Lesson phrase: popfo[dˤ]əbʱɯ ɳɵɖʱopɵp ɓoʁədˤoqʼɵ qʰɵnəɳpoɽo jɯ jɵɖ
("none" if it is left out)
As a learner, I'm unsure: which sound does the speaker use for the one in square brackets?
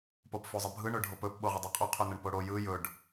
zˤ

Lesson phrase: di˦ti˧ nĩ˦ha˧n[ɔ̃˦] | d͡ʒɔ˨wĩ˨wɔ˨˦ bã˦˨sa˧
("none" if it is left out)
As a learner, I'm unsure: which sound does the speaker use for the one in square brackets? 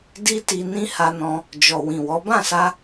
ɔ̃˧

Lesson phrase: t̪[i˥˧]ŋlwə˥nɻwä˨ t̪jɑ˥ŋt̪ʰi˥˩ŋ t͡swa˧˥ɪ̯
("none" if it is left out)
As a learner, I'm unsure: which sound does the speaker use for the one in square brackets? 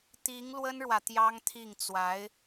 i˧˥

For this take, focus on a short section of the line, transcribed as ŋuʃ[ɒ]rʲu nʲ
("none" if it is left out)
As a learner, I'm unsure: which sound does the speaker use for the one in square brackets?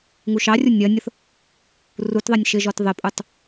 ɑ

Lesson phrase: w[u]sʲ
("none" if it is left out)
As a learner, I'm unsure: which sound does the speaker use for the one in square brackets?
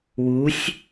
u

